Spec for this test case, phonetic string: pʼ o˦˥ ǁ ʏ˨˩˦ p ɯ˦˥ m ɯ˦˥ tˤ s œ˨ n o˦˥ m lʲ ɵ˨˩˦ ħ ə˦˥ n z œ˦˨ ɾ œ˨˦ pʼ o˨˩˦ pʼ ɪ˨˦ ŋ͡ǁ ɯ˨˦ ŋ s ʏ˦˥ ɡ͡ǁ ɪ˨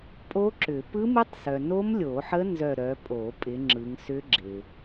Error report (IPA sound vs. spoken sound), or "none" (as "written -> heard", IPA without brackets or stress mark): ɵ˨˩˦ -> o˨˩˦